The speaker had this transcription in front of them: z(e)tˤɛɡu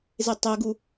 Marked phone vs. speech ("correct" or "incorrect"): correct